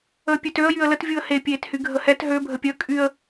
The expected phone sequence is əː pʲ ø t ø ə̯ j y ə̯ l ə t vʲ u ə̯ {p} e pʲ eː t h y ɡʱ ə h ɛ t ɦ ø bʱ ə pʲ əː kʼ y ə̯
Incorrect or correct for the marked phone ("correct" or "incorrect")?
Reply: incorrect